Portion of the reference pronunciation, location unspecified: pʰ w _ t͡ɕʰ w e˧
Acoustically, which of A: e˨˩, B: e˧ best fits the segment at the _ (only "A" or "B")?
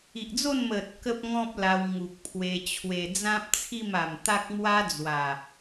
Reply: B